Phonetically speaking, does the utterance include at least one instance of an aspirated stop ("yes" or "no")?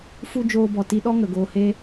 no